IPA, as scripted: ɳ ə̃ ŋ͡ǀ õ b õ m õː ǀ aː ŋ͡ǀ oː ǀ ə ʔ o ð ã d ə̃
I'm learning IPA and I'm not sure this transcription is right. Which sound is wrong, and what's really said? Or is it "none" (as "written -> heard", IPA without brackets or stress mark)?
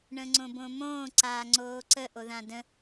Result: none